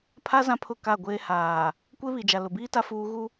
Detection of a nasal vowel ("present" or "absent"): present